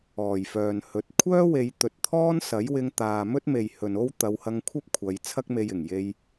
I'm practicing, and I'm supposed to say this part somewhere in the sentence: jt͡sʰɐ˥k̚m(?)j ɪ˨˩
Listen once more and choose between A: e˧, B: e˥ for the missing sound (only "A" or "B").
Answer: A